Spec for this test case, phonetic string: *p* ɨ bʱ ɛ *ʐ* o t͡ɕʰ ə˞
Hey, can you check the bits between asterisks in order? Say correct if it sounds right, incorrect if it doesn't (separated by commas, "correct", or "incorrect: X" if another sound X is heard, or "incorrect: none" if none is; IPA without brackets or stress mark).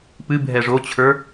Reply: correct, correct